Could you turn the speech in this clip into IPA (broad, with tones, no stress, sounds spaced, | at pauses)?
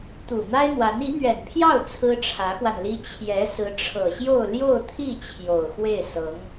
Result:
t̪ u˨˩ n̪ a˥ ɪ̯ n̪ w a˧˥ n i˧˥ n̪ ɥ ɛ˨˩ n pʰ j ɑ˥˩ ʊ̯ t͡sʰ ɹ̩˥ ʈ͡ʂʰ ä˧˥ x w a˧ n l i˥ t͡ɕʰ j ɛ˧˥ s ɹ̩˧˥ ʈ͡ʂʰ ɤ˨˩ ɕ j o˥˧ ʊ̯ l j o˥˧ ʊ̯ t̪ʰ i˥˩ t͡ɕʰ j o˨˩ ʊ̯ x w e˥˩ ɪ̯ s ɤ˧˥ ŋ